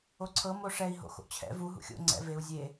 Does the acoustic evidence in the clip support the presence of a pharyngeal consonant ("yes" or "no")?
no